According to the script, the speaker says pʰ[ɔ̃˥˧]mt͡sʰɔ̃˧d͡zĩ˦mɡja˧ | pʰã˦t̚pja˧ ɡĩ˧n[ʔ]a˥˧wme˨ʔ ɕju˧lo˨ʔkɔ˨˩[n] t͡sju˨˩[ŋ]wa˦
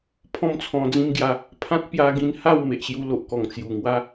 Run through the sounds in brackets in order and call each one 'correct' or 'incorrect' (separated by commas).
correct, incorrect, incorrect, correct